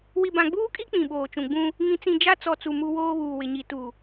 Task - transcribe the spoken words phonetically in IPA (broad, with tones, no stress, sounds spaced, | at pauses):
w i˨ b ã˨ ɡ͡b uː˦ kʼ i˦ k͡p ĩ˨ ɓ oː˨ t͡ʃ ũ˨ ɡ͡b ũ˦ | ŋ ĩ˨ t͡s ĩ˨ d͡ʒ a˦ t͡s ɔ˨ t͡s u˨ m u˦ w oː˦ β uː˨ w ɪ˨ ɲ i˨ t u˨